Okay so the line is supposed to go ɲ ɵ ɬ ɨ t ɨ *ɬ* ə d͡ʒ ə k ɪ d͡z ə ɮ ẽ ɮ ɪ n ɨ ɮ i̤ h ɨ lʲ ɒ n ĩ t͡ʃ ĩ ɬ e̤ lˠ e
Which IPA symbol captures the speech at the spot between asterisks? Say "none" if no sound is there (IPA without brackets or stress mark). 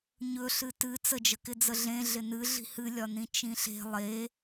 t͡s